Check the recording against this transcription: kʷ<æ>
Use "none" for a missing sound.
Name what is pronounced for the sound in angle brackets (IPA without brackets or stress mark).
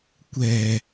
ɛ